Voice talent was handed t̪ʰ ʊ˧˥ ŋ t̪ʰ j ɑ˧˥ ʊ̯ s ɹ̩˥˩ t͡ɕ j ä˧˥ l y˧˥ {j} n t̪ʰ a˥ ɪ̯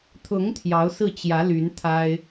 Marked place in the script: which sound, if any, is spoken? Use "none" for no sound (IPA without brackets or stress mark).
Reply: none